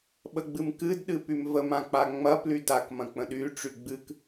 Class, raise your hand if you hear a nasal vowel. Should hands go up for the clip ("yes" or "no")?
yes